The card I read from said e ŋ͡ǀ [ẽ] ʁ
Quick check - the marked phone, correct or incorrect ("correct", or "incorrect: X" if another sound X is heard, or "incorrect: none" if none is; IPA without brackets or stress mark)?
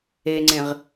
correct